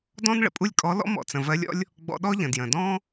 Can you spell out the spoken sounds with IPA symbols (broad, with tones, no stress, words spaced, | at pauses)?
dɔ̃˥n ɭə̰˧pʼu˥lʲkʼɔ˧˥ lɔ̰˥mɔ̰˧ t͡sə̃˩vɜ˧˥lʲɔ̰˥lʲ | ɡ͡bɔ̰˧ɗɔ˥ʎə̃˩ djə̃˩dɔ̃˥